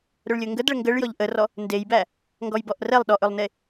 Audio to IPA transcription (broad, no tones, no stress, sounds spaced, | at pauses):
ɾ ɵ ɭ lʲ ɵ ŋ ɡ ə d ɭ ə ŋ ɡ ə ɭ j ɔ ʎ ʔ ə r ɔ | n d e j b æ | ŋ ɡ ɔ j b ɔ ʔ r ɛ lˠ ɗ ɔ ʔ ɵ lˠ n e